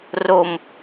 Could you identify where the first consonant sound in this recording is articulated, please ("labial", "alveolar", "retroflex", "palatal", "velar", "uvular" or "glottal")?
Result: alveolar